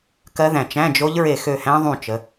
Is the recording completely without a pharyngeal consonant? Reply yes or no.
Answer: yes